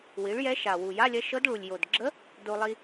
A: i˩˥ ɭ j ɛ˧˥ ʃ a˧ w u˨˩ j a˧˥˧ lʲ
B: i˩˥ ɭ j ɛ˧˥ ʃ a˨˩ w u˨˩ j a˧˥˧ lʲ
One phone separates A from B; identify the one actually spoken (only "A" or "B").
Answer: B